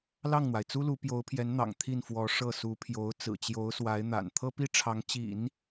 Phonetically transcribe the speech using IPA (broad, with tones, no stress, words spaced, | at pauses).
lɑ˥˩ŋn̪wa˩ɪ̯t͡su˥lu˧˥ pjo˧˥ʊ̯pʰjɛ˧˥nn̪ɑ̰˨˩ŋ t̪ʰi˥˩nfwɔ˧˥ʂɤ˥˩ su˧˥pʰjo˧˥ʊ̯ t͡sɹ̩˨˩t͡ɕjo˧˥ʊ̯swa˧˥ɪ̯n̪a̰˨˩n t̪ʰɤ˥pi˥ʈ͡ʂʰɑ˧˥ŋ t͡ɕḭ˨˩˦n